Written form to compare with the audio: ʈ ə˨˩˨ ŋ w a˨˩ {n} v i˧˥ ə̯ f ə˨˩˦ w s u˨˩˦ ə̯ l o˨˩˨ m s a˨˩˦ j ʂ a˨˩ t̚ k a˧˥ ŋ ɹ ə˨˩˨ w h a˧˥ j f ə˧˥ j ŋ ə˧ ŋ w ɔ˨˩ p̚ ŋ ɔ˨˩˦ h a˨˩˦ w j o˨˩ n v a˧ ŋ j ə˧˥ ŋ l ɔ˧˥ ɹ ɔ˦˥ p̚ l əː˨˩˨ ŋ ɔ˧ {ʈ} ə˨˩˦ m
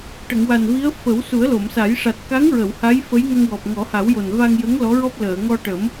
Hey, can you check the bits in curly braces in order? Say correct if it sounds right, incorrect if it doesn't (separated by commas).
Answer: correct, correct